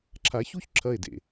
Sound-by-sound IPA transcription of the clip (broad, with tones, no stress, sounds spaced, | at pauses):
ǁʰ a˨˦ ç u˦ ç ǁʰ ɐ˦˨ e̯ d ḛ˨